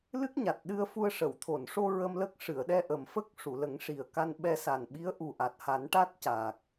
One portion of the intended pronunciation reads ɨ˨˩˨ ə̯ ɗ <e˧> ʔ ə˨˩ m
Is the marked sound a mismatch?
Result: yes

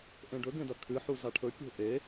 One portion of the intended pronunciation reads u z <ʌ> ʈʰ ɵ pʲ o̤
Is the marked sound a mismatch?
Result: yes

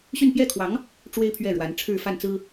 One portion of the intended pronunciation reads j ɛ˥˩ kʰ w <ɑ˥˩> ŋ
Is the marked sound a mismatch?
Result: yes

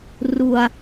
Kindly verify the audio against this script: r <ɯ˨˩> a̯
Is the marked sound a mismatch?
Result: yes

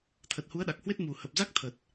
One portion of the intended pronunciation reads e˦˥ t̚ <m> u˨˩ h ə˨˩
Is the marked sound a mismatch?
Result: no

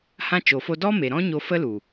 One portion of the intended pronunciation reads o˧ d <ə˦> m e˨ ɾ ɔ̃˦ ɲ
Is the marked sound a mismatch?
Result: yes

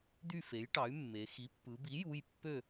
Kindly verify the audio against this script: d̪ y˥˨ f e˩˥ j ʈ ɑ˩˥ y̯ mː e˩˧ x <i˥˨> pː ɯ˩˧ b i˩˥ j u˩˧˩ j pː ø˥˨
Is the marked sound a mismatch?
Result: yes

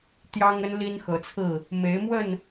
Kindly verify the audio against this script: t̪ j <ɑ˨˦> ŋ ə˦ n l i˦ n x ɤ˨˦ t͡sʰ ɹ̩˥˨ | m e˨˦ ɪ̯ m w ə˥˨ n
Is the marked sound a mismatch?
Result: yes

